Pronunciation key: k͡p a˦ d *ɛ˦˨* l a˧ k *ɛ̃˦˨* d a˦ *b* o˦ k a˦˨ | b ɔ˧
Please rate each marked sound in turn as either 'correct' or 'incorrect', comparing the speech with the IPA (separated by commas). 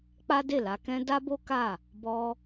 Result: incorrect, incorrect, correct